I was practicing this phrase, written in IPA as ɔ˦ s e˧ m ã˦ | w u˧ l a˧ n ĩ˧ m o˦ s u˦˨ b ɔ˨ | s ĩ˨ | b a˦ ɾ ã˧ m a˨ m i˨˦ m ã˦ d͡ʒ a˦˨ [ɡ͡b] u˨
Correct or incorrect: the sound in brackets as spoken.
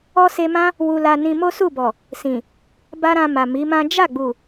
correct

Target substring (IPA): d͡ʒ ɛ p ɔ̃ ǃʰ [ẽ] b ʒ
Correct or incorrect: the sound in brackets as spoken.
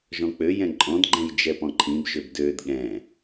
incorrect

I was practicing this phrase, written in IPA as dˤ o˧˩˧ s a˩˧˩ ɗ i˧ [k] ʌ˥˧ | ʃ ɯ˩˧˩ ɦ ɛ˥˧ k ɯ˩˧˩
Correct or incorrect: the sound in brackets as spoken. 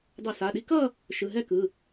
correct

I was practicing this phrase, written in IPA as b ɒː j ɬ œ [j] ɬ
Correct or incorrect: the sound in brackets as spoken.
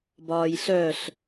incorrect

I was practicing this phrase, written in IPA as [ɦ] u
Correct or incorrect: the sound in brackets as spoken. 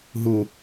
correct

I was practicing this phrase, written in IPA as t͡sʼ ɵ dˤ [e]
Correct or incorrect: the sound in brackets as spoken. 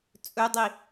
incorrect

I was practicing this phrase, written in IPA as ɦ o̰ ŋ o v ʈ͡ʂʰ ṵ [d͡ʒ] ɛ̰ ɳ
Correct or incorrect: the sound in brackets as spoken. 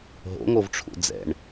incorrect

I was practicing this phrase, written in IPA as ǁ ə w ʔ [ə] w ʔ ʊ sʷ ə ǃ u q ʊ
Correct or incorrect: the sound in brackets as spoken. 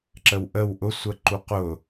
correct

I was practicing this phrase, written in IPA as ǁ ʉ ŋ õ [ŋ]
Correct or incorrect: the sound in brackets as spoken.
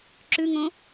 incorrect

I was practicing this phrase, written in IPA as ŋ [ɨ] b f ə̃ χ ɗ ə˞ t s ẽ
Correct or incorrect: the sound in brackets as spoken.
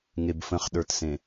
incorrect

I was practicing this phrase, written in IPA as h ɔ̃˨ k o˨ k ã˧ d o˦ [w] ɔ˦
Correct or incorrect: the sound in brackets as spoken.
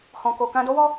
correct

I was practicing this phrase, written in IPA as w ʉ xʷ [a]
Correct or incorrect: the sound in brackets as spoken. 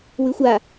correct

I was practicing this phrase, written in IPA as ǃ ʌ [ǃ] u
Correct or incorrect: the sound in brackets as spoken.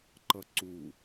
incorrect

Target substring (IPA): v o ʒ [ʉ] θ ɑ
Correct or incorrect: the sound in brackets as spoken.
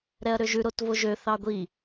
incorrect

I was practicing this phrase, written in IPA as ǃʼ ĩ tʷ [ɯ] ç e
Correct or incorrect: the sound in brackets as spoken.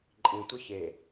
correct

